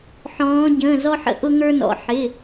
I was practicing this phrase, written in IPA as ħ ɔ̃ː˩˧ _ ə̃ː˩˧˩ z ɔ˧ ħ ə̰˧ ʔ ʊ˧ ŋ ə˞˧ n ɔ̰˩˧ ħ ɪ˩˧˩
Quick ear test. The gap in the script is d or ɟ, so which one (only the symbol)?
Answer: ɟ